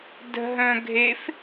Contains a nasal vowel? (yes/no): yes